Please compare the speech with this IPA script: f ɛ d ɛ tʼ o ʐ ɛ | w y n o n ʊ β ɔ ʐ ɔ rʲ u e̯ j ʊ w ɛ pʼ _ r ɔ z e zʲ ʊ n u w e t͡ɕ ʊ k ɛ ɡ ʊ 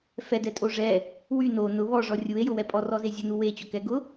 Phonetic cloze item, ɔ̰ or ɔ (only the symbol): ɔ